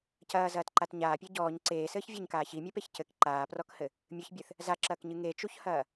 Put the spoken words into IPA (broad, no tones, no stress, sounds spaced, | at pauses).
c ɐː z ɐː t ǃ a t ɲ aː pʲ e ɟ ɔː ɲ ǀ eː s ɘː ç vʲ ɐ ɲ k aː ç i mʲ ɛ p e ç c ɘ k ǃ aː p r ɔ k h ɘ | mʲ ɨ ç bʲ ɨ θ | z a ǁ ɐː k ɲ ɨ ŋ e t͡ʃ u ç h ɐː